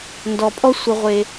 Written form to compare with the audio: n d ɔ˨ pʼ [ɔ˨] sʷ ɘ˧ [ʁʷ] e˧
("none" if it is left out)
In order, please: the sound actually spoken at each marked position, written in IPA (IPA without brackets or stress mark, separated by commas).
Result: ɔ˦, ʁʷ